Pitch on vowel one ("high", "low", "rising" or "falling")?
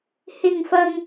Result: high